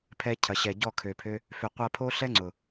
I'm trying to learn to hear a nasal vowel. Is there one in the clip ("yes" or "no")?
no